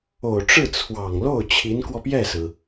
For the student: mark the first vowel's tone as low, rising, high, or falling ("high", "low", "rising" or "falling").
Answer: low